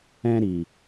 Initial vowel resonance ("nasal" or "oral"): nasal